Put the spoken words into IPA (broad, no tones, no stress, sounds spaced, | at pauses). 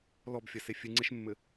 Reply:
l ɔ b fʲ ɐ s e fʲ ɨ ŋ͡ǀ e ʃ mː ɘ